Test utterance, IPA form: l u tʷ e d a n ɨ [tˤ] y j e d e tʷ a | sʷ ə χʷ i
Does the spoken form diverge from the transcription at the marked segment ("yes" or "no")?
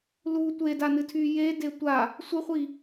yes